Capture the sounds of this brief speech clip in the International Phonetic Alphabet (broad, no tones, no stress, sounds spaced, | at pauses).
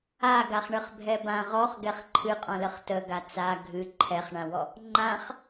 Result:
a ɡ a χ ɳ ə χ bʱ ɛ b ã ʁ ɔ χ ɡ ɛ χ ǃʰ ɨ qʼ ɔ̃ l ə χ t ə ɡ a t͡s a ɡʱ ɨ ǃʰ ɛ χ ɳ ã w ɔ | ŋ͡ǃ ã χ